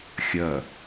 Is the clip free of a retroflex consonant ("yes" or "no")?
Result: yes